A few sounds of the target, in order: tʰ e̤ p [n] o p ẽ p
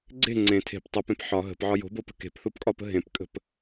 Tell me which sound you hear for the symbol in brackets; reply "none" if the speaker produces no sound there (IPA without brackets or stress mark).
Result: tˤ